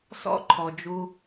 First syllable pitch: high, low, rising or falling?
high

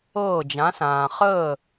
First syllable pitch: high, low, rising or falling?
falling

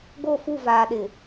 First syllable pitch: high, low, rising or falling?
falling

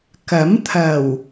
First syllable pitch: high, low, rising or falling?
rising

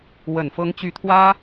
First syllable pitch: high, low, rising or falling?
low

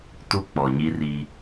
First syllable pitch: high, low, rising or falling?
high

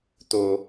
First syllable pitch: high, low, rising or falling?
high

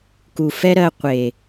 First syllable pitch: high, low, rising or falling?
low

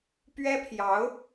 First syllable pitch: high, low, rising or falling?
high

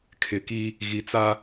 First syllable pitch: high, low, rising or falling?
low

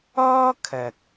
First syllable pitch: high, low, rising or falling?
high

